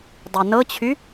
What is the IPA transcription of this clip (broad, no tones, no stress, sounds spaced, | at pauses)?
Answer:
dˤ y n ɤ t͡ɕʰ y